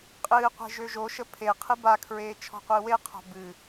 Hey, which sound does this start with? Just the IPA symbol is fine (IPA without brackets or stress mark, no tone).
qʼ